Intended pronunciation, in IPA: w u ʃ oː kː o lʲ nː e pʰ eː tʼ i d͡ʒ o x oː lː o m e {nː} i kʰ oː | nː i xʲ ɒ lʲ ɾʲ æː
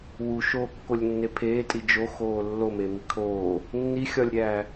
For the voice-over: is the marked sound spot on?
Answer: no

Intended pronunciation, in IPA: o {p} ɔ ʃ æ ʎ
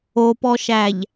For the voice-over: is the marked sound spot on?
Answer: yes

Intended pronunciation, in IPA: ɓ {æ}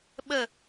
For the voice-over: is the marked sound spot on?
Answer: no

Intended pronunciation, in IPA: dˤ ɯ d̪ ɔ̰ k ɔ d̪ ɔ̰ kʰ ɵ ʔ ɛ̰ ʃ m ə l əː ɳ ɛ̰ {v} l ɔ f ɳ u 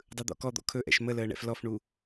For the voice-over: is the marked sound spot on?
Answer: no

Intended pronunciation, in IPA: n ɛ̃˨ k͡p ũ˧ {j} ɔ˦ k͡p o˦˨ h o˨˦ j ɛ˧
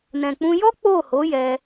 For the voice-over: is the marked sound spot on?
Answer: yes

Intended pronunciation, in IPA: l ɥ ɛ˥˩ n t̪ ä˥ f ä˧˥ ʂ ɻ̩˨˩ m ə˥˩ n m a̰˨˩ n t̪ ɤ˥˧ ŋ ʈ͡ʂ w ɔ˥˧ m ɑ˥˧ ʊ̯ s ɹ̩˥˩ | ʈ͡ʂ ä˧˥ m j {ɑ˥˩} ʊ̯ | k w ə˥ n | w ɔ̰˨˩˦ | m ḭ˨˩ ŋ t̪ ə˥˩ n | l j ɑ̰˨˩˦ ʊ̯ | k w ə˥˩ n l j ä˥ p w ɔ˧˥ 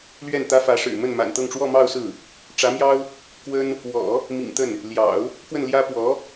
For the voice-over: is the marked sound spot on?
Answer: no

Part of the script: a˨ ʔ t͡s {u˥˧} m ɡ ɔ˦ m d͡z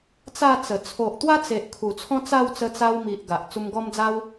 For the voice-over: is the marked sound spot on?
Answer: no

